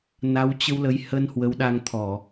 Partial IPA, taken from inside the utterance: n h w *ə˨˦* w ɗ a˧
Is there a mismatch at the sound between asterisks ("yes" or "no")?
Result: no